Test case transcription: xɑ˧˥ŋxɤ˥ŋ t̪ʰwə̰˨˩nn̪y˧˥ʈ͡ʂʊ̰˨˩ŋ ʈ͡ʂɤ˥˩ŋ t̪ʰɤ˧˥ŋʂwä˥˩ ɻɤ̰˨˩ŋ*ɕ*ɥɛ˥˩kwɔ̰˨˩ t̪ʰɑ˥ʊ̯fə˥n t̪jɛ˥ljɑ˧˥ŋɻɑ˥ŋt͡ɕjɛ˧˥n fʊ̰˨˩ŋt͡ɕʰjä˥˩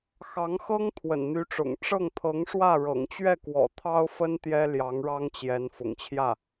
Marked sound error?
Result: yes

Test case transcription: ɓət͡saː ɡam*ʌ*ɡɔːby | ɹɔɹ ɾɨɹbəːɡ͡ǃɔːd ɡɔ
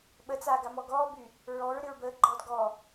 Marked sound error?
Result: yes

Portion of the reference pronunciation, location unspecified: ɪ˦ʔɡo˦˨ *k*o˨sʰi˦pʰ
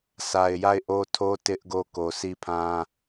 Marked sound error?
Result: no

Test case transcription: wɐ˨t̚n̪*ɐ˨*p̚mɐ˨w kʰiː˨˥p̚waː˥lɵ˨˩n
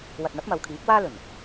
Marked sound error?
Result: yes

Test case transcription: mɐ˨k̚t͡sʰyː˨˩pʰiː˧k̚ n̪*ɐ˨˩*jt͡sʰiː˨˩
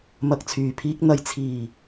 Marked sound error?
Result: no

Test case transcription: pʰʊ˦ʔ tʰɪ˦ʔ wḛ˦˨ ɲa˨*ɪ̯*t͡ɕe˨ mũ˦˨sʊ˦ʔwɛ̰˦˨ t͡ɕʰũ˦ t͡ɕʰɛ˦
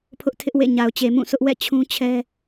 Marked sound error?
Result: yes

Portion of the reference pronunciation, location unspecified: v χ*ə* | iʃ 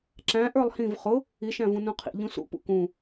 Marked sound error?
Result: yes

